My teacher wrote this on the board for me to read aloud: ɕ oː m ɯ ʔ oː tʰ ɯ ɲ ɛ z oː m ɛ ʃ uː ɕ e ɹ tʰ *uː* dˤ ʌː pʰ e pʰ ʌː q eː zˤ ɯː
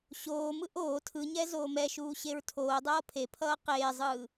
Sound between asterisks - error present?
yes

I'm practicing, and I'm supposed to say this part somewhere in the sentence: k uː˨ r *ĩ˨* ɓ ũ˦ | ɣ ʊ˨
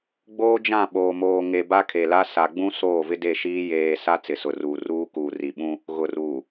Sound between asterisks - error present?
yes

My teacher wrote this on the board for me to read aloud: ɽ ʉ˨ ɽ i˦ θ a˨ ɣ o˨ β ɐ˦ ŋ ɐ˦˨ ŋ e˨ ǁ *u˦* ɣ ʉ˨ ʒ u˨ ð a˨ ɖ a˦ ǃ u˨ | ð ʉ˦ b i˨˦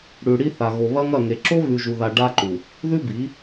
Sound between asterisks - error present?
yes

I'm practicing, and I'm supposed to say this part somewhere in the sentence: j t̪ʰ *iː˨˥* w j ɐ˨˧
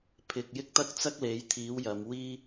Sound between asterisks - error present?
no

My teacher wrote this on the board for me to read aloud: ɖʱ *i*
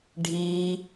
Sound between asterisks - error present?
yes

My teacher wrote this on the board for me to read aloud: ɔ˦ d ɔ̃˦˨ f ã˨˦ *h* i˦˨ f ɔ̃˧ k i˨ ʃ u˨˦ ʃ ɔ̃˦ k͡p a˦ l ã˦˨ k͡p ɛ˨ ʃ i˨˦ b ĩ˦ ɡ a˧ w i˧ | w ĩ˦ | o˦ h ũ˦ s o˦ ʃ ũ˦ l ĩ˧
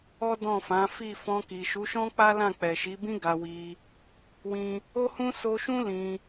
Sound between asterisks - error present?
yes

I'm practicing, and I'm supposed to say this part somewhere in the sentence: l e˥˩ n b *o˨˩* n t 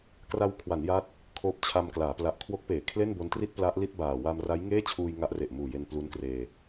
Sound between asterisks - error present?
yes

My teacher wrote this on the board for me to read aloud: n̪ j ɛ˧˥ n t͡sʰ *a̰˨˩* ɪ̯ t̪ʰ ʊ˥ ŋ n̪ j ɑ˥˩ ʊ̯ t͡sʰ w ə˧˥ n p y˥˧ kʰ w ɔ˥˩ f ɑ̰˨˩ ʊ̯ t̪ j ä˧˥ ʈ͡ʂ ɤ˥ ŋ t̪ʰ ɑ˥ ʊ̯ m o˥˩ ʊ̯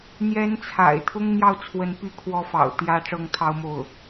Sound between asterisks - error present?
no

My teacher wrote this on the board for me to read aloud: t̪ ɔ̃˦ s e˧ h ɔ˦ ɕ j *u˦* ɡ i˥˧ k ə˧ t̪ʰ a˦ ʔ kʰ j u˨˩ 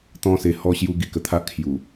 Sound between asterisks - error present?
no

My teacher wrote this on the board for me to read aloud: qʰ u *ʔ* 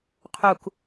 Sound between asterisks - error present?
yes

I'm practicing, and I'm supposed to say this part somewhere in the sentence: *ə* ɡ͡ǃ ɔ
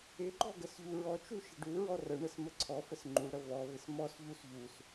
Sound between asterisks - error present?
yes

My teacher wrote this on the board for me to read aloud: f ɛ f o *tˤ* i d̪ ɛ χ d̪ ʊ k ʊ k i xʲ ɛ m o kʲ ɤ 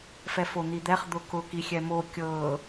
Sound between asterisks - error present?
yes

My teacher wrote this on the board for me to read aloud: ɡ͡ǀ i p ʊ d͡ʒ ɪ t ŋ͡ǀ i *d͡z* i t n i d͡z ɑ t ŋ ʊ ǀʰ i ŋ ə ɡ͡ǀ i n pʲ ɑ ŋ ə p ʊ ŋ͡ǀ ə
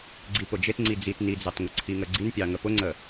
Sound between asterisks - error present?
no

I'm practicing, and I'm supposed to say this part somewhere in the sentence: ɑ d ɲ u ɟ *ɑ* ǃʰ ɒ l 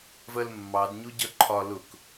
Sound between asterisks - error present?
yes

